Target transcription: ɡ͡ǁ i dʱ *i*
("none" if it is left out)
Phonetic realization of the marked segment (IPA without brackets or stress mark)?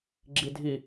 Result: i